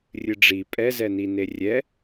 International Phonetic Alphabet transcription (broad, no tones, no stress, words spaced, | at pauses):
rʲɨɖ͡ʐi pʼɛzɛni nerʲɛ